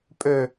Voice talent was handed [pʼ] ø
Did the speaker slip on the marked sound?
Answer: no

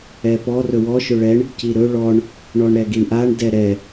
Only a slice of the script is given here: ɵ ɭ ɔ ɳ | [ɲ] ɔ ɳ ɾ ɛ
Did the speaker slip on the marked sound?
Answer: yes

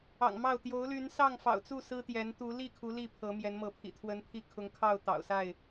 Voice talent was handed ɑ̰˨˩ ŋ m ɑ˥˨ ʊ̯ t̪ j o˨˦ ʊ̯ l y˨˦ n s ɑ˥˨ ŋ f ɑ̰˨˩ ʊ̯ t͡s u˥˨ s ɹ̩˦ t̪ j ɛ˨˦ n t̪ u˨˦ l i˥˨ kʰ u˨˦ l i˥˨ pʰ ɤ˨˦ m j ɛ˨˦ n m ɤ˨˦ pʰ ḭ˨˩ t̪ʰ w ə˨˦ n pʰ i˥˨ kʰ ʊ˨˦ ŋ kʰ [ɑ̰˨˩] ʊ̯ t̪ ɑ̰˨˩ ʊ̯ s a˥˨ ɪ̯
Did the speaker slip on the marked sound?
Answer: yes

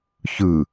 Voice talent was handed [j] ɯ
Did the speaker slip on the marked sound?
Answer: yes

